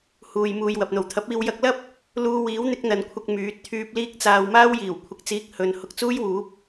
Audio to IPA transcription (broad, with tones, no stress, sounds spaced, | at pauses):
h uː˨ j m uː˨ j w ɐ˨ p̚ n̪ o˨˩ w t̪ʰ ɐ˨˥ p̚ iː˧ w j ɐ˧ k̚ l ɐ˥ p̚ | l uː˧ w iː˨˥ w n̪ ɪ˨˥ k̚ n̪ ɐ˨˧ n kʷʰ ɐ˧ k̚ m yː˨˥ t̚ t̪ʰ yː˧ p̚ l iː˥ k̚ t͡s aː˧ w m aː˥ w j iː˨˩ w kʷʰ ɪ˨˥ k̚ t͡s iː˧ k̚ h ɵ˨ n h ʊ˧ k̚ t͡s uː˥ j w uː˨˥ p̚